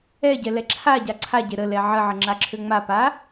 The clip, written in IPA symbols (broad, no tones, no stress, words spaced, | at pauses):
ɛɟɛlɛ ǁʰaɟa ǀʰaɟe ɾəlɛ ʕəʕəŋ͡ǁaǁʰø ŋ͡mapa